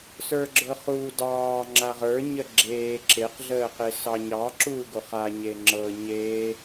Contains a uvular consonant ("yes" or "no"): yes